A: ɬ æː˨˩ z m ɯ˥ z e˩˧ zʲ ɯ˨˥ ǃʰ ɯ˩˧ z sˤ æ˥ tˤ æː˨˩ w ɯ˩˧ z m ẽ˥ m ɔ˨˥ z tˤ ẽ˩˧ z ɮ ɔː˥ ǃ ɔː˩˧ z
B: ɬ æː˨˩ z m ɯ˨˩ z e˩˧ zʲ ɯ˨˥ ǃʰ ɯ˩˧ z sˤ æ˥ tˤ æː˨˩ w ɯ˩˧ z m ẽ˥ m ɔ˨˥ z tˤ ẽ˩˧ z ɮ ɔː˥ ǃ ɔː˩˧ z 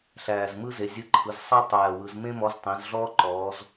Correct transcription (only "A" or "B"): A